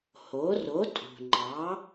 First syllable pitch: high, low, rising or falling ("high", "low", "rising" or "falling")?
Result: rising